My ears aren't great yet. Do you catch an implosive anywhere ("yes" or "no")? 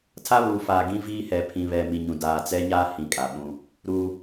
yes